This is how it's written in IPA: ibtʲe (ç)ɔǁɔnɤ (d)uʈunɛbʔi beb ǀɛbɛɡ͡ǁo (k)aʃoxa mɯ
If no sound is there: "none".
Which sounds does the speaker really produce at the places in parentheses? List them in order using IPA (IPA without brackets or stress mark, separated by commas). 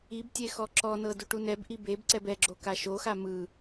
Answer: x, d, k